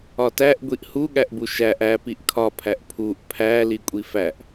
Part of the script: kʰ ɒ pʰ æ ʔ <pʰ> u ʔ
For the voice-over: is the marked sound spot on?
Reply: yes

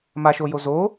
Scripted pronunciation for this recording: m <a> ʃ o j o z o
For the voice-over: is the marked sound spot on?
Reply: yes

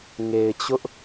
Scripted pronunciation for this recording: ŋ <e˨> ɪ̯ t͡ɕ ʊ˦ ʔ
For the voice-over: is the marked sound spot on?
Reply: yes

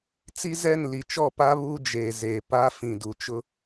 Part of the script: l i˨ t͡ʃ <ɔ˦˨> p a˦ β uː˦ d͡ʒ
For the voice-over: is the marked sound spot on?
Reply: yes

